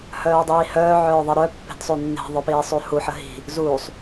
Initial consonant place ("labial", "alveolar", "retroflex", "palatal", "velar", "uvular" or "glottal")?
glottal